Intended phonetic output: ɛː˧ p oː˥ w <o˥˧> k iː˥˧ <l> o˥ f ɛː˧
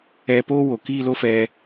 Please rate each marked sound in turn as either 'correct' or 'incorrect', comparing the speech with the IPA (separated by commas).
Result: incorrect, correct